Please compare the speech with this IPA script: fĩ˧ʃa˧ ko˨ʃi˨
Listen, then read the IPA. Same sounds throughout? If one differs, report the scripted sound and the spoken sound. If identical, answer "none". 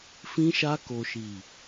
none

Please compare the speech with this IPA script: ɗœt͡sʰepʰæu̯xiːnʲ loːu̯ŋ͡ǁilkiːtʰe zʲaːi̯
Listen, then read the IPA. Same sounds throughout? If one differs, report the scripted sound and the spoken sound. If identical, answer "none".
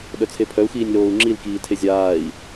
æ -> œ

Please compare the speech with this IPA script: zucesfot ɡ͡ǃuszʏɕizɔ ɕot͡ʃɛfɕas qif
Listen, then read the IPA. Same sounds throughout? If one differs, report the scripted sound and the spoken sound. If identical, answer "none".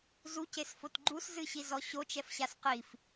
ʏ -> ɨ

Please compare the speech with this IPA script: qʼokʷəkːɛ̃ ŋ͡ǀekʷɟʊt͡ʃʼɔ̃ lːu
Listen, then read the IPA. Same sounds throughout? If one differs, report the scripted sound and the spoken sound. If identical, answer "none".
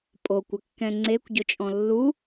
qʼ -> pʼ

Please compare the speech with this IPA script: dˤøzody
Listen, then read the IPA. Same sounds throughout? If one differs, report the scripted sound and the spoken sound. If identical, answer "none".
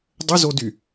none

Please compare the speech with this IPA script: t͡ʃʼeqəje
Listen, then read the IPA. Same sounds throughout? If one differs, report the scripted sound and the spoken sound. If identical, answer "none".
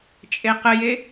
none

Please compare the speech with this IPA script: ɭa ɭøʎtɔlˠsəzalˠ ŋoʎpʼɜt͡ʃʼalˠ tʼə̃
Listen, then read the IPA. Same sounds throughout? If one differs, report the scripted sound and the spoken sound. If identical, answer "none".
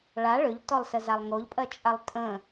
none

